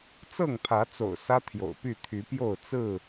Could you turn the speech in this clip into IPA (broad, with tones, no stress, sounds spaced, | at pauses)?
t͡s ɤ˥˨ ŋ pʰ ä˨˦ t͡s o̰˨˩ ʊ̯ s ä˦ t̪ʰ j o̰˨˩ ʊ̯ p y˥˨ t̪ʰ y˨˦ p j o˥˨ ʊ̯ t͡s ɹ̩˥˨